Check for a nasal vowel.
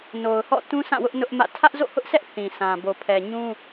present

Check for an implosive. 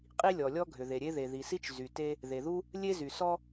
absent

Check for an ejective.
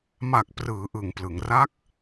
absent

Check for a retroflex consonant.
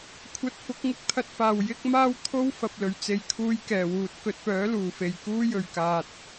absent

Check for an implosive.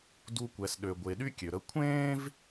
present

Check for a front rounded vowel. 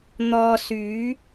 present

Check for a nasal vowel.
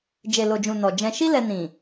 present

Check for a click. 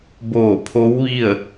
absent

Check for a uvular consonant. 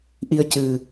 absent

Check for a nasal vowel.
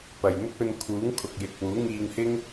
absent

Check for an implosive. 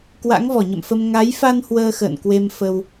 absent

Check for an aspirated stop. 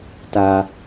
absent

